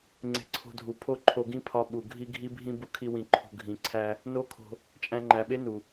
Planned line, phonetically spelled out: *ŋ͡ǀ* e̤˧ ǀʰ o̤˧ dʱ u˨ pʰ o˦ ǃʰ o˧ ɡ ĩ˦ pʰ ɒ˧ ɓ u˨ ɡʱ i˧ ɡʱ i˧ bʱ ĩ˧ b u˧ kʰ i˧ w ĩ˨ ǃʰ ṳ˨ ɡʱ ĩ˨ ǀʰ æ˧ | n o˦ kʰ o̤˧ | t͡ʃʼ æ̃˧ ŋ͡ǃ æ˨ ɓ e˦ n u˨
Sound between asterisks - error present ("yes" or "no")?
no